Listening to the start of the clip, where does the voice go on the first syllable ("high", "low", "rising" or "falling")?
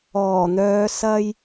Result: low